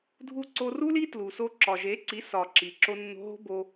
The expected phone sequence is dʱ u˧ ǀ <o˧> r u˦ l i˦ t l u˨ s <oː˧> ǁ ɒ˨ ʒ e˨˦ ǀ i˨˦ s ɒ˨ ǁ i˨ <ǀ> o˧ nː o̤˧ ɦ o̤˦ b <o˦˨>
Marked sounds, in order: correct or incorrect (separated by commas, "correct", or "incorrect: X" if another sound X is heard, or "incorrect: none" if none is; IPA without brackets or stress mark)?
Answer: correct, incorrect: o˧, incorrect: ǁ, incorrect: o˦